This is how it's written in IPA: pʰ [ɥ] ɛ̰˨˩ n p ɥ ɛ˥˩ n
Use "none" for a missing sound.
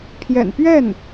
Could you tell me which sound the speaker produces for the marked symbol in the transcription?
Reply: j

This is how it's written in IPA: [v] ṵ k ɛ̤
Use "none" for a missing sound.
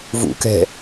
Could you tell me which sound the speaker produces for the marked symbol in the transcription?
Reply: v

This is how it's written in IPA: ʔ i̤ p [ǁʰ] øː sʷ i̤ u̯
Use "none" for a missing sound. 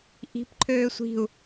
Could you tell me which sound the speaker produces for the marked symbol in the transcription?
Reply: ǃʰ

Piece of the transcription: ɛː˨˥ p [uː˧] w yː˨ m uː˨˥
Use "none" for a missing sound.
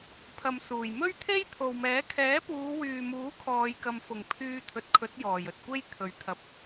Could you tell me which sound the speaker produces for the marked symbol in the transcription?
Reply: uː˨˧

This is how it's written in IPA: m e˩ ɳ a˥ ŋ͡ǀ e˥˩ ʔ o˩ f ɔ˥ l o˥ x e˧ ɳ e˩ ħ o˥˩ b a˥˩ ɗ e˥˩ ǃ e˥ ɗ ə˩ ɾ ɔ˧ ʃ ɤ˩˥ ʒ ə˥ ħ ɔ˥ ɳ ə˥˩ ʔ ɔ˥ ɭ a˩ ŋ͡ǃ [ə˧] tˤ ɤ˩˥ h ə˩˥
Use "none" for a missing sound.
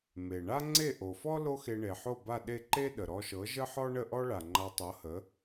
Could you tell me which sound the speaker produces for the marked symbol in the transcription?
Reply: a˧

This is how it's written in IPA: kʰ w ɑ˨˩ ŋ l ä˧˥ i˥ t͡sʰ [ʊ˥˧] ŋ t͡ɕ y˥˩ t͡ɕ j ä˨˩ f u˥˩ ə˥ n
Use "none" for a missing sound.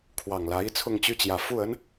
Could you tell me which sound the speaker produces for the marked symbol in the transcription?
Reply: ʊ˥˧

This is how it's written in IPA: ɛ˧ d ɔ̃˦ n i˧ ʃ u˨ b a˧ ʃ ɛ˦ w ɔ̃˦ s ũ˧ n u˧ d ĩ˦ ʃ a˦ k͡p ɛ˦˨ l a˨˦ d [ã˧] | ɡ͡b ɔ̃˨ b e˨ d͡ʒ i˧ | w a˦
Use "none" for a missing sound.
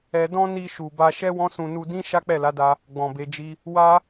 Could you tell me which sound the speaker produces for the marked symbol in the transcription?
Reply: a˧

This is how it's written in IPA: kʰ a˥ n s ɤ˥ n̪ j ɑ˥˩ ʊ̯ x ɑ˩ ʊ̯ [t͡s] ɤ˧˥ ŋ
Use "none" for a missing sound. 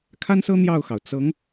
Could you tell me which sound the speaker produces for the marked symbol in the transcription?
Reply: t͡s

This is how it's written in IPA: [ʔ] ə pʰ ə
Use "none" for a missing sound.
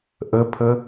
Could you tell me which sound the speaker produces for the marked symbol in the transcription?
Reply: ʔ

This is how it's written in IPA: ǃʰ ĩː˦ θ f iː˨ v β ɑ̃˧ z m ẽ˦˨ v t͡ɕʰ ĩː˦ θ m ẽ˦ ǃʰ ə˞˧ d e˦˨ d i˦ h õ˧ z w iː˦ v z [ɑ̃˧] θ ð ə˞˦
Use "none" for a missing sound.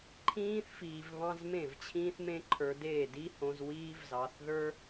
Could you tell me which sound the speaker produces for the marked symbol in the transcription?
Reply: ɑ˧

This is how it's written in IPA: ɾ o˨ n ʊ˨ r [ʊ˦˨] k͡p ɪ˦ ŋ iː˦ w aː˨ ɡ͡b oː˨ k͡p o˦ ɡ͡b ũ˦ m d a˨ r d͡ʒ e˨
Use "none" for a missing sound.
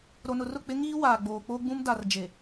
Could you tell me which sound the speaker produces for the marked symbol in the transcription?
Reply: ʊ˦˨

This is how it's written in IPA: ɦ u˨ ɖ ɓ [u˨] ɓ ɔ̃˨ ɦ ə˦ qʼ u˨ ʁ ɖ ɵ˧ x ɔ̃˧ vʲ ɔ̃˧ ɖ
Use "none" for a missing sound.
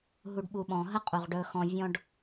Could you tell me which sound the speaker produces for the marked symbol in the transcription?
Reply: u˨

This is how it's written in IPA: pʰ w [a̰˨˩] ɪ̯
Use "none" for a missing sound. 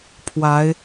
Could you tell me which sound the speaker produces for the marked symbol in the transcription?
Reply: a˨˦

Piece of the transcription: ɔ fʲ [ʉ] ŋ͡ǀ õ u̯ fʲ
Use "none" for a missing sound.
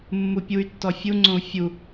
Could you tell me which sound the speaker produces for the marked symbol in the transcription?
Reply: u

